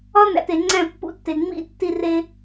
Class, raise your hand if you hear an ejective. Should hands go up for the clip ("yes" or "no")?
no